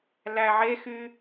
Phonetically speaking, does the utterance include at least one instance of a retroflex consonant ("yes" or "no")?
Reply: no